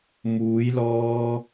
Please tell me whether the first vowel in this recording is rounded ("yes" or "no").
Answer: yes